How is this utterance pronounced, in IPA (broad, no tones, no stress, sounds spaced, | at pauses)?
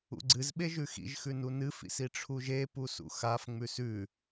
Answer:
ṵ ɡ͡ǀ ɨ z ɓ e ʒ ʉ x ḭ ʒ x ʉ n u n ɨ f ḭ s i ʈ͡ʂʰ u ʒ e p u s ṵ x a f ŋ͡m ʉ s ʉ